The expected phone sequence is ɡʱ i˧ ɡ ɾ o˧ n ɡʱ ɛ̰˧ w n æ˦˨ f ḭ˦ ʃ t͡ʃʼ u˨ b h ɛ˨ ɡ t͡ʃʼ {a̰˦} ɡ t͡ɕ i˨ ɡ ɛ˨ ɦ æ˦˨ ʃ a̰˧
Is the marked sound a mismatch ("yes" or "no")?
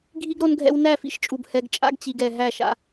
no